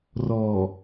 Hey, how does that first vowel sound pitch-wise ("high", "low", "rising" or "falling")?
low